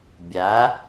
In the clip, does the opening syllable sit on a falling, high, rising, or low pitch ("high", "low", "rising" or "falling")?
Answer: rising